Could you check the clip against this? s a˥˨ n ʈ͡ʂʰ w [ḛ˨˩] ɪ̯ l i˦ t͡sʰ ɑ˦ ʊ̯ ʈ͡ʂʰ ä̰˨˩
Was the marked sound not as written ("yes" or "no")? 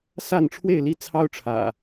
yes